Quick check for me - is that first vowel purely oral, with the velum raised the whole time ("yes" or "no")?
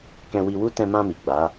no